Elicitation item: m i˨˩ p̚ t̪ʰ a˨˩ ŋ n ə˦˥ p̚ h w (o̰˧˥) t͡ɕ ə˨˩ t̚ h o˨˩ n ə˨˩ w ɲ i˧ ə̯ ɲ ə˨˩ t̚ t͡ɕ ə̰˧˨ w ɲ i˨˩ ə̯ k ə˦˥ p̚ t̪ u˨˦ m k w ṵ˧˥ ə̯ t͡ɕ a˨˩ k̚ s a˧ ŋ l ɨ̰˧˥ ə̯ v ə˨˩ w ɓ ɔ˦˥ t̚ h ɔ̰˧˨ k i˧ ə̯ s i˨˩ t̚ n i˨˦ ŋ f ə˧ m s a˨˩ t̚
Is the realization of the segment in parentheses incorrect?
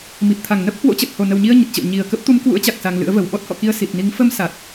no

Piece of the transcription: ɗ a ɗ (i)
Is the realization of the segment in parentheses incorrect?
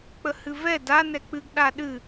yes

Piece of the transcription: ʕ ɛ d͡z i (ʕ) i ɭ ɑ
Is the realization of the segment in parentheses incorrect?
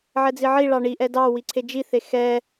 no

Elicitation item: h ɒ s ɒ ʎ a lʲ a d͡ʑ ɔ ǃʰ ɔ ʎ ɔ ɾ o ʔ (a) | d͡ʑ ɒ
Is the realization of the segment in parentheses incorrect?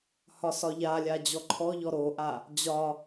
no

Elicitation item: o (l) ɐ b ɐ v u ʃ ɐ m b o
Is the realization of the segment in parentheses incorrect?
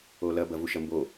no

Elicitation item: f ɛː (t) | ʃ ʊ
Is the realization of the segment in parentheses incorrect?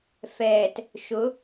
no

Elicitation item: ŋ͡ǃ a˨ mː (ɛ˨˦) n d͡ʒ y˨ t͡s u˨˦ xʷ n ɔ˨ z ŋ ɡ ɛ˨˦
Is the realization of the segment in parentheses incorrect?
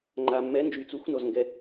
no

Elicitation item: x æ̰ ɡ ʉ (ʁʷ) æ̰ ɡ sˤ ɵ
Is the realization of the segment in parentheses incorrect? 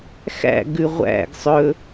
no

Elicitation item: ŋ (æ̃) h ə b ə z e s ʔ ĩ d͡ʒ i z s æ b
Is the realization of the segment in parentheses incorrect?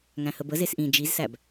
no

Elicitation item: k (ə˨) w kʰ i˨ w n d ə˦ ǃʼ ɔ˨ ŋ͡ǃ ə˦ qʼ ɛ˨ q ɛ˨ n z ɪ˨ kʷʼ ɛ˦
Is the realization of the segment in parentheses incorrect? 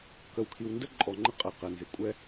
no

